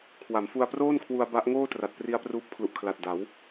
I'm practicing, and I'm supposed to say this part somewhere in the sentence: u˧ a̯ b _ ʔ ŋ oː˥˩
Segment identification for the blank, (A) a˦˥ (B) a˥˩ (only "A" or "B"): A